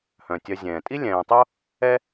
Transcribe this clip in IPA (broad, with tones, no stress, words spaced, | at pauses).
hœ̃˩tʲœ˨ zʲɛ̃ː˩tʼi˥ lʲɛ̃ː˨tˤo˥ | ɛ˥